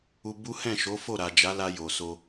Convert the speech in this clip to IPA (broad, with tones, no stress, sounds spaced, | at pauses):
u˧ b u˦ h ɛ̃˦˨ ʃ o˨˦ f o˦˨ ɾ a˨ d͡ʒ a˨˦ l a˧ j o˨ s o˧